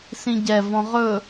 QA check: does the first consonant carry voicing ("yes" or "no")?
no